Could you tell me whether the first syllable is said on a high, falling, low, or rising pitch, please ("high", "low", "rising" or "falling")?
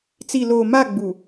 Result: low